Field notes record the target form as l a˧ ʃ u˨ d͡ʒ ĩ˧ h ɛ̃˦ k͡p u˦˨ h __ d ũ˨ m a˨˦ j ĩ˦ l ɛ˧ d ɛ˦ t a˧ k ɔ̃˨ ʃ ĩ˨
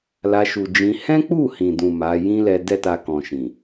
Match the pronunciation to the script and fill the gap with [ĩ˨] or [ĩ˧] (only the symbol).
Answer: ĩ˨